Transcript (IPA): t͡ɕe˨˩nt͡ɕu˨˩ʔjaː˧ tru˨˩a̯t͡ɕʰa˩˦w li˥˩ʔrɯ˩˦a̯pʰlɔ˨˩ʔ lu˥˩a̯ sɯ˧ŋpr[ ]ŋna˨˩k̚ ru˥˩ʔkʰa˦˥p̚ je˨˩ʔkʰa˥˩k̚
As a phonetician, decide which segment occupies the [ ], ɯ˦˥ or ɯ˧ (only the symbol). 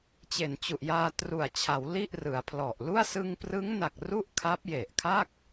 ɯ˦˥